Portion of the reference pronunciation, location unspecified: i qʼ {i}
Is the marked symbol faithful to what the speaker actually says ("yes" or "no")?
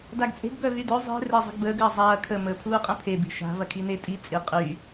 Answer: no